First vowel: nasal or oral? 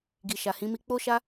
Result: oral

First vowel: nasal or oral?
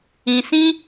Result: nasal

